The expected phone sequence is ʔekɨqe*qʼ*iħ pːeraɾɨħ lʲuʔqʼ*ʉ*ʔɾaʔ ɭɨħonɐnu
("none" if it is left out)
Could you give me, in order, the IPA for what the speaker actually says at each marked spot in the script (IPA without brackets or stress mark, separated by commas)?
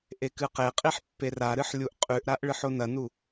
qʼ, ʉ